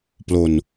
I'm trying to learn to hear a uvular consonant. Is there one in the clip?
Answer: no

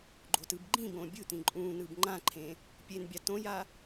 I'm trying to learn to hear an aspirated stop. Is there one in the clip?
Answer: yes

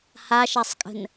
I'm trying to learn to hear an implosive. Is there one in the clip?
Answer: no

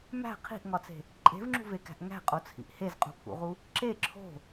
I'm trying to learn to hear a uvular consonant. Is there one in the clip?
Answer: yes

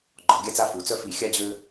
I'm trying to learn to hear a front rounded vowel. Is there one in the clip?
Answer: yes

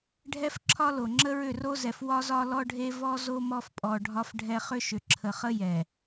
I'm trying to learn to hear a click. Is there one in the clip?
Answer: yes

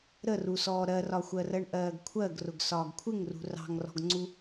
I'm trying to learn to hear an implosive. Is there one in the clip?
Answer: no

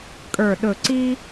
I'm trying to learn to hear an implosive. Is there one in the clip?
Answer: yes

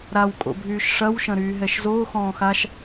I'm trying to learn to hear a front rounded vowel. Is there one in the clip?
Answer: yes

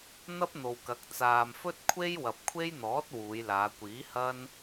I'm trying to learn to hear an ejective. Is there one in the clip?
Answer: no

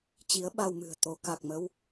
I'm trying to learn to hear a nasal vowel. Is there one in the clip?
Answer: no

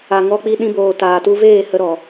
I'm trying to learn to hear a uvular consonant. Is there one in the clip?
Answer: no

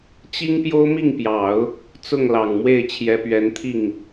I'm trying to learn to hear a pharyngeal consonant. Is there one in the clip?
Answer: no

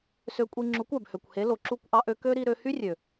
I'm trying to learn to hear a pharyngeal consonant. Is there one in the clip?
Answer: no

